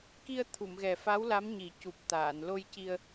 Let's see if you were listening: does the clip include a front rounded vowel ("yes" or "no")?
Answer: no